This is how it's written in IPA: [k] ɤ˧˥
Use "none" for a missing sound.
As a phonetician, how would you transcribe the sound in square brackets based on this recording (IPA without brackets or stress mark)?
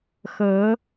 x